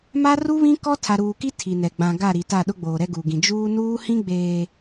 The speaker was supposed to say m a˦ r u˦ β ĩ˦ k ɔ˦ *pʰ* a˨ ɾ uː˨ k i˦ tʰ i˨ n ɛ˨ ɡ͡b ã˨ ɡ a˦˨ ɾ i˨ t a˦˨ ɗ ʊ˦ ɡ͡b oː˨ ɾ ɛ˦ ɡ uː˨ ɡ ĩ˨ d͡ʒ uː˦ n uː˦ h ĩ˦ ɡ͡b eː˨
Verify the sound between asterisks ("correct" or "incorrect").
incorrect